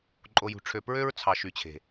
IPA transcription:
ǃʼ o˨ j ṳ˨ ʈ͡ʂʰ ø˨ p ɹ ø˦ ɹ t͡sʰ ɑ˨ ʃ y˨ t͡ɕʰ e̤˨

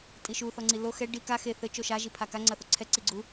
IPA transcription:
tʼ i ʃ u θ ɔ ŋ͡ǀ i l o x ɛ ɖ i k a x e θ ɘ t͡ʃ o ʃ a ʒ i pʰ a k a ŋ͡ǀ ɐ θ o ǀʰ ɛ ǀ i ɡ͡ǀ u

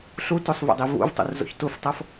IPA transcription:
ɬ u t u sˤ v ḛ dˤ i v ṵ v tˤ ṵ r z o̰ ç t u f tˤ ɤ f

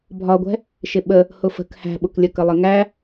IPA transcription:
bʱ ɒ ɡʷ ɛ̤ | ʃ ɪ ɓ ə | h ʊ f ə̤ k h æ̤ ɓ ʊ k lʲ ə k ə lˠ ɪ ŋ æ

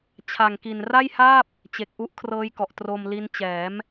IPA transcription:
t͡ɕʰ a˨˩ ŋ k i˨˩ n r a˥˩ j h aː˥˩ p̚ | t͡ɕ e˨˩ k̚ ʔ u˦˥ ʔ kʰ r ɤː˦˥ j k ɔ˨˩ ʔ t r o˧ m l i˦˥ n t͡ɕ ɛː˩˦ m

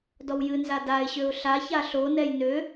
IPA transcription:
d ɔ w j ɨ n z a d a ɪ̯ ɕ ø ʊ̯ ɬ a ç a ɬ o n ɛ j n ø

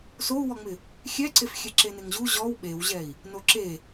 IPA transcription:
s o u̯ w ɔ ŋ͡m ɪ | xʲ ɛ ǀ e f xʲ ɛ ǁ e n ɪ ŋ ʑ u ʑ ɔ w ɓ e w ʑ ɛ i̯ | n o ǁ e

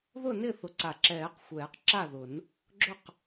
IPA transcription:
ð ʊ˥˩ n ɪ˥˩ θ ʊ˨˩˦ ǀ a˨˩˦ ǁ ɛː˨˩˦ q xʷ ɛː˨˩˦ q ǁ a˥˩ ð ʊ˨˩˦ n | ɡ͡ǁ ʊ˥˩ q

